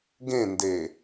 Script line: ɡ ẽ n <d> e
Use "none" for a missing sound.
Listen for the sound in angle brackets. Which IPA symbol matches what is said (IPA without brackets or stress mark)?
d